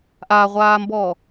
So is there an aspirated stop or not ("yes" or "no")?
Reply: no